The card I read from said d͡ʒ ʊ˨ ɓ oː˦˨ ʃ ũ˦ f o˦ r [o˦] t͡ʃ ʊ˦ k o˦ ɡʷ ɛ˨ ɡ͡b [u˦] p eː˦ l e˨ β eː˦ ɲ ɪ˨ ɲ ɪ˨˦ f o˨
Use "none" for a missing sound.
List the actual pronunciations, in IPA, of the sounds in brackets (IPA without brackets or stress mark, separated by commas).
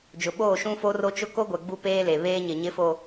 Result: o˦, u˦